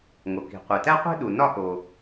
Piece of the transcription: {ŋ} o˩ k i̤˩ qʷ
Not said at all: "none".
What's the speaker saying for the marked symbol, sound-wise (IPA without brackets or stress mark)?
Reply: ŋ